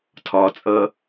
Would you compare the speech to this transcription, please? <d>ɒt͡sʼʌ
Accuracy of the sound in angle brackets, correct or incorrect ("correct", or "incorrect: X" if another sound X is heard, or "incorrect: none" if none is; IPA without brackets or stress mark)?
incorrect: tʰ